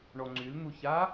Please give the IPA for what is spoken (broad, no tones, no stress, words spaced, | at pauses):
ɳɔŋ͡ǀyln̪uça